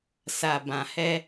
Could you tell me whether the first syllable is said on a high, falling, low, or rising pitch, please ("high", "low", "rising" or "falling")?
low